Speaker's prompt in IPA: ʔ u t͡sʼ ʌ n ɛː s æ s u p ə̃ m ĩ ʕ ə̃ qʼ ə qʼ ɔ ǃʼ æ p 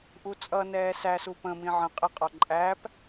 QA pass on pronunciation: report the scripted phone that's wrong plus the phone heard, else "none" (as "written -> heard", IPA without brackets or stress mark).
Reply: none